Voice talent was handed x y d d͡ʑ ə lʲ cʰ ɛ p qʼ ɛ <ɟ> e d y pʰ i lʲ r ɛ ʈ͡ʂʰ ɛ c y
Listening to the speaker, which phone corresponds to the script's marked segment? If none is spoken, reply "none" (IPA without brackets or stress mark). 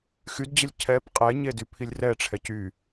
ɲ